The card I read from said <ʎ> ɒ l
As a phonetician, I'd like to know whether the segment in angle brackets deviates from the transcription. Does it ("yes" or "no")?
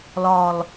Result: yes